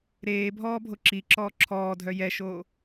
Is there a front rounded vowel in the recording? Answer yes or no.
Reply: yes